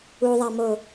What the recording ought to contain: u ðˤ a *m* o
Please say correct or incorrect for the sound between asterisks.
correct